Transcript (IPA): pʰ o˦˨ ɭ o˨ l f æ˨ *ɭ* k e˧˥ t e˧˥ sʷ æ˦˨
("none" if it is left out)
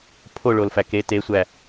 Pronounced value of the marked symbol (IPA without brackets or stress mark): none